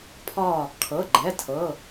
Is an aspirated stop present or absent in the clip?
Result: present